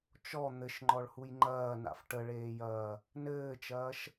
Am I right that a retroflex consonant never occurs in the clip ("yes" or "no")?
no